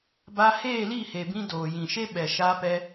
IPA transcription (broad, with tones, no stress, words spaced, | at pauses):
ba˧ heː˦˨li˦˨he˨bĩ˧ doː˨jĩ˨ʃe˦ ɓɛ˨ʃa˧ pɛ˧